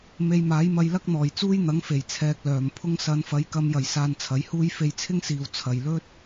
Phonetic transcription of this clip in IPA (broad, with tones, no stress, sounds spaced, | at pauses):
m e˧ j m aː˨˥ j m ɐ˧ j l ɐ˥ k̚ n̪ ɔː˨˩ j t͡s uː˥ j n̪ ɐ˨˥ ŋ f e˨˩ j t͡sʰ ɛː˧ k̚ l œː˨˩ m pʰ ʊ˥ ŋ s ɐ˨˧ n f ɐ˨˧ j k ɐ˧ m j ɐ˨˩ j s aː˨ n t͡sʰ ɐ˨˥ j h uː˥ j f e˧ j t͡sʰ ɪ˥ ŋ s iː˨ w t͡sʰ ɐ˨ j l ɵ˥ t̚